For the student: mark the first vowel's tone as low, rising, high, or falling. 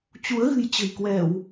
rising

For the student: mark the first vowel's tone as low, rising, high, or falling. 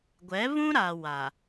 rising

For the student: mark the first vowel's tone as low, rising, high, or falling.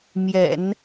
low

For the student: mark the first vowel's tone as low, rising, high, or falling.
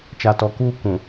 low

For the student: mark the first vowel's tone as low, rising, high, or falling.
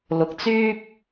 low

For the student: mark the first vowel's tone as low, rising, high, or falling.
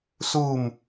falling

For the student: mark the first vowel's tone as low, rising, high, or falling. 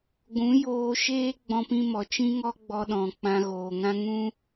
rising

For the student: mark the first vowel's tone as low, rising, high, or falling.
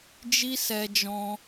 high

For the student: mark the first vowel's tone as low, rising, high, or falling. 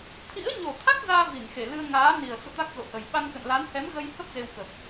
rising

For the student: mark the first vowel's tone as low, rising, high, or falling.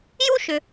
high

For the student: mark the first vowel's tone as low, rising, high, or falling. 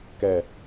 low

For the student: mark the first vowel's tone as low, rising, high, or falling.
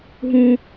low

